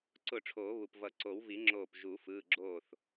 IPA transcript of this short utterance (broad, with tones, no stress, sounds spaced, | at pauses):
ǀ ʊ˧˩ ʈ͡ʂʰ oː˨˩˦ β u˩ p v ʌ˨˩˦ ǀ o˨˩˦ w v i˨˩˦ ŋ͡ǁ oː˧˩ p ʒ u˨˩˦ f ɯː˩˧˩ ɡ͡ǁ oː˧˩ θ